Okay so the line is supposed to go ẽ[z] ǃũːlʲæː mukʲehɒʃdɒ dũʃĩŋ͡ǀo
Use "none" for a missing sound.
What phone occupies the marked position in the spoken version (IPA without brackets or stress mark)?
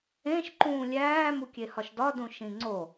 ʃ